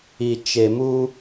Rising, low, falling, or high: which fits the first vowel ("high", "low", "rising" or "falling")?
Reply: low